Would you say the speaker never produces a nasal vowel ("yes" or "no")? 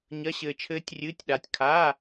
yes